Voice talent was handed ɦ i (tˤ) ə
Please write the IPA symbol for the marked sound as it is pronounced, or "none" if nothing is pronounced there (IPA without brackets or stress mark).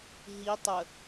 tˤ